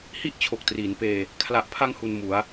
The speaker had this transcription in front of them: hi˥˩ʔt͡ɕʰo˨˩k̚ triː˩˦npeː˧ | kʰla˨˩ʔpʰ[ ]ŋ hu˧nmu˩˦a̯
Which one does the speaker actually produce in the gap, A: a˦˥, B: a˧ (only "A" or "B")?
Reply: B